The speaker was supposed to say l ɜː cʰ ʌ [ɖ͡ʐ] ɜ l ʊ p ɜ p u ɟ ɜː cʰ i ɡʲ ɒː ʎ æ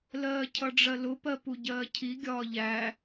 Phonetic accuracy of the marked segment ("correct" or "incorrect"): correct